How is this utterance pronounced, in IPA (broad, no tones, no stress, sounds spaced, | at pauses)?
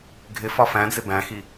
ɡʱ ɪ f ɒ f æ̃ d͡z ɪ b æ̃ x i